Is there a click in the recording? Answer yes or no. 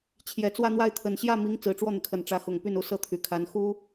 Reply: no